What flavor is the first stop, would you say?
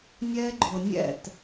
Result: click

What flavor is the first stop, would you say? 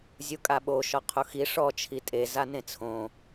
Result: ejective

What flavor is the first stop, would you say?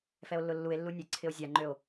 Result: click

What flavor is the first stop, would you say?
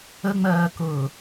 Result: plain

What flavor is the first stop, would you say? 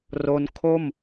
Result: aspirated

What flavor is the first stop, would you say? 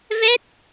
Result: plain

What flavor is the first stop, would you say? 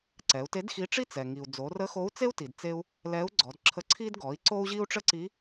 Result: click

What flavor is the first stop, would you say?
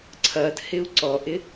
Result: click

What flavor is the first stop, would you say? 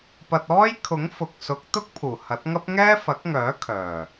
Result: plain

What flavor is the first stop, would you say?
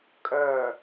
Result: ejective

